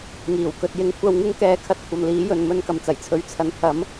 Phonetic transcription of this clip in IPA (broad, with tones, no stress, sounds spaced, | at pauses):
ŋ iː˨˩ w k ɵ˨ t̚ j ɪ˧ ŋ kʷʰ ɐ˧ w ŋ ɪ˥ ŋ k ɛː˧ kʰ ɐ˧ t̚ kʷʰ ɐ˨ m l iː˨˥ j ɵ˨ n m ɵ˧ n k ɐ˨ m t͡s ɐ˨˩ j t͡sʰ ɵ˨˥ ɥ t͡sʰ ɐ˨ n pʰ ɐ˨˥ m